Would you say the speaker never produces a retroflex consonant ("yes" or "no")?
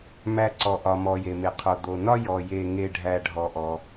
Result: no